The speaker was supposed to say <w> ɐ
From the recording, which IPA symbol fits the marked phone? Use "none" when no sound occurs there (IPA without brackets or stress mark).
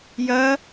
j